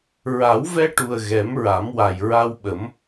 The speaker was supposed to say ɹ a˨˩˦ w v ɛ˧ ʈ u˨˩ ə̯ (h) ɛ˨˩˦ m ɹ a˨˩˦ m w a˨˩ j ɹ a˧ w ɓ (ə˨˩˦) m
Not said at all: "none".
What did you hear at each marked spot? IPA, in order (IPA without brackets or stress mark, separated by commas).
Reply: ɣ, ə˨˩˦